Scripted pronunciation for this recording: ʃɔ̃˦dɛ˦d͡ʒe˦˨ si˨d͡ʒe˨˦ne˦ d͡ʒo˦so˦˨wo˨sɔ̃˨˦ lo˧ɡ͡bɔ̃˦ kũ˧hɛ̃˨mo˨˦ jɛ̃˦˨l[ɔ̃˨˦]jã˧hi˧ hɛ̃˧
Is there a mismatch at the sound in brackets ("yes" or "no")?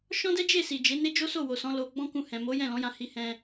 no